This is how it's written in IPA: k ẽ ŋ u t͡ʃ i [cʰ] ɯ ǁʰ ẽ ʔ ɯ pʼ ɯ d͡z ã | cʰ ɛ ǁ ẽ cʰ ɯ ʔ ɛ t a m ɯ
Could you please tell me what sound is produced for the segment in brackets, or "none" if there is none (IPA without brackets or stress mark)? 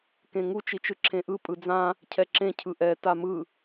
t͡ʃ